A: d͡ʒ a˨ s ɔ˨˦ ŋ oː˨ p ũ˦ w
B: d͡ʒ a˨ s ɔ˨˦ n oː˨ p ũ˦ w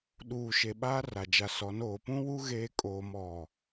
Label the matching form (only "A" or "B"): B